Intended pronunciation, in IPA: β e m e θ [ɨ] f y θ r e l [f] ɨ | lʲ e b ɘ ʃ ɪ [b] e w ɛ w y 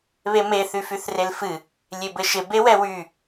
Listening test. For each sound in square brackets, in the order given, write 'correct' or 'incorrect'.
incorrect: y, correct, correct

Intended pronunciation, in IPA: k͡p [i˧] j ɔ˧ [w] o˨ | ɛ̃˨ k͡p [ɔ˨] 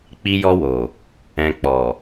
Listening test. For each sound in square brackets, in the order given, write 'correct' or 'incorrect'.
correct, correct, correct

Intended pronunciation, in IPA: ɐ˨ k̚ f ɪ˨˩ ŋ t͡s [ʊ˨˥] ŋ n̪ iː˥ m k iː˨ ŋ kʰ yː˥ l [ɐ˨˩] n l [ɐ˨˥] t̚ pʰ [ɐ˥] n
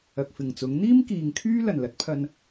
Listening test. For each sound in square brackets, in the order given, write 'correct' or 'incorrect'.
correct, correct, correct, incorrect: ɐ˧

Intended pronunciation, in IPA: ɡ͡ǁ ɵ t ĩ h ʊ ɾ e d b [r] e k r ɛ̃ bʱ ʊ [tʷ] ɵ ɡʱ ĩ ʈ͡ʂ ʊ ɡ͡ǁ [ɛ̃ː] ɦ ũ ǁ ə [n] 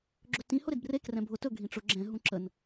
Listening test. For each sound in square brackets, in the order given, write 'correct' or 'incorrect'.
correct, incorrect: t, incorrect: ɛ̃, correct

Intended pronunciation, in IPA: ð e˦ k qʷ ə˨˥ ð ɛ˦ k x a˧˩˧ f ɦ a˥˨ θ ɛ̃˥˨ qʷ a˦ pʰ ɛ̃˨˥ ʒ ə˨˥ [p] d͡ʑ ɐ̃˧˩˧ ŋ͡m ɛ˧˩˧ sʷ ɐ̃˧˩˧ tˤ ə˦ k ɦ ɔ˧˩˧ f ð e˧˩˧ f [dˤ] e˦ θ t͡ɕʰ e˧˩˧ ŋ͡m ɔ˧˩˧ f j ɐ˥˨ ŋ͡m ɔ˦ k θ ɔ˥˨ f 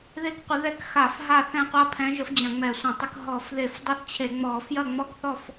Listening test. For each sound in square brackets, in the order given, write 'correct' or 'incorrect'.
incorrect: f, correct

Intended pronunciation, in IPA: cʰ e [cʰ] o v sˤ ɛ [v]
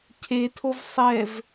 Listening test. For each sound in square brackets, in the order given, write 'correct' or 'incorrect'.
incorrect: tʰ, correct

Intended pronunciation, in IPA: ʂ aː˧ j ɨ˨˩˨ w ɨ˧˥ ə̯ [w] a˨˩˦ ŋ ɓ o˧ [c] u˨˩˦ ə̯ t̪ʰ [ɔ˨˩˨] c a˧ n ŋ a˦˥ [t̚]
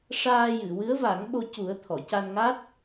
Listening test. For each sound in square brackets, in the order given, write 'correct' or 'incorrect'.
incorrect: v, correct, correct, correct

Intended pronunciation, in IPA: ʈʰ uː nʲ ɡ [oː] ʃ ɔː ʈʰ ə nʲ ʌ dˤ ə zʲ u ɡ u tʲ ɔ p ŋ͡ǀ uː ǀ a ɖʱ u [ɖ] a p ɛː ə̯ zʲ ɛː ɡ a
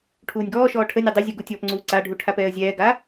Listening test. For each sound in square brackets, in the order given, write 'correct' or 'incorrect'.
incorrect: ɔː, incorrect: ʈʰ

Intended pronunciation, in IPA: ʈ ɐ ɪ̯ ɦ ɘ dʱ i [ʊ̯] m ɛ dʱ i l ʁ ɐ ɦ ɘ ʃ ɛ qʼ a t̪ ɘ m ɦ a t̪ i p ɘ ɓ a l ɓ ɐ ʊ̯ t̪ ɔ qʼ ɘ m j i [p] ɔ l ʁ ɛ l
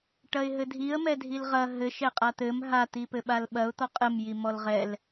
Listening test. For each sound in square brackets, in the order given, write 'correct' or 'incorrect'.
incorrect: ə̯, incorrect: m

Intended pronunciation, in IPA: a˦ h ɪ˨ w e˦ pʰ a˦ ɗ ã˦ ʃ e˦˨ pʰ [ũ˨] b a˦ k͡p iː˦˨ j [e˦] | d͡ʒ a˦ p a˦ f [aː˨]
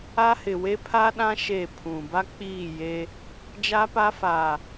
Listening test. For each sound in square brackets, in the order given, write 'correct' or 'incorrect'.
correct, correct, correct

